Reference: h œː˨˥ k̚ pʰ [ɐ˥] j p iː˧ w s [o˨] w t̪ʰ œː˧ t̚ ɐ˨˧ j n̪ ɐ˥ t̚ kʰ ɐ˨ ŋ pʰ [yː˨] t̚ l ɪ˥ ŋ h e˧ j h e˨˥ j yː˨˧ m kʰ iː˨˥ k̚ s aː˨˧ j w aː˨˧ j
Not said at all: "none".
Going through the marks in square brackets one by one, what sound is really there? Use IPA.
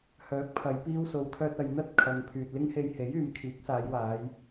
ɐ˨˧, o˨˧, yː˨

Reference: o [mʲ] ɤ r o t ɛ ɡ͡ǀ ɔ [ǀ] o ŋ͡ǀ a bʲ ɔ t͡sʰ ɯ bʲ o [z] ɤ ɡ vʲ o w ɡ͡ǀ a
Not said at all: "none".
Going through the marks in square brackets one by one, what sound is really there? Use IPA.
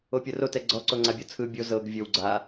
pʲ, ǀ, z

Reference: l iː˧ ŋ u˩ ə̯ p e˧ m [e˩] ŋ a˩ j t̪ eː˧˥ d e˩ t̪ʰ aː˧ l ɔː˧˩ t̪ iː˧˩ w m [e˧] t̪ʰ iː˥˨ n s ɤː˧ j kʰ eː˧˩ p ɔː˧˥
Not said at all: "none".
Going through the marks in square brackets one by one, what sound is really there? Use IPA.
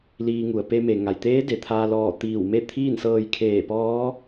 e˩, e˥˨

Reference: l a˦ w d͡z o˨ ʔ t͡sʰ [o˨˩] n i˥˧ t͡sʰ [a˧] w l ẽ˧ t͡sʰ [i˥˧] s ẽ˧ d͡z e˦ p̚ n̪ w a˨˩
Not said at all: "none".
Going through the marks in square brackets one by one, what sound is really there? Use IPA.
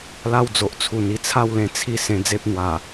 u˨˩, a˥˧, i˥˧

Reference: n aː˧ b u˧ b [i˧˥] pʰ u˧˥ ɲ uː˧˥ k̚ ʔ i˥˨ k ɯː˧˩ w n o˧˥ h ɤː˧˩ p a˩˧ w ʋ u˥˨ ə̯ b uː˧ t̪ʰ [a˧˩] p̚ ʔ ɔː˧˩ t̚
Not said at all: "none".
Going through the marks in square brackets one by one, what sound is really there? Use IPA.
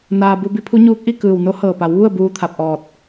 i˧˥, a˧˩

